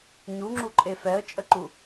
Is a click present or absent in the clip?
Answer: present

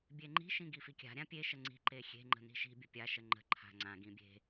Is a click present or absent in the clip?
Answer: present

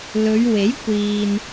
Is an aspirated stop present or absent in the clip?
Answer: absent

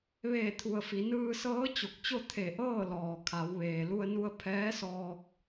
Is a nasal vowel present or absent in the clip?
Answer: absent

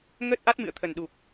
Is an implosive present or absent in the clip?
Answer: present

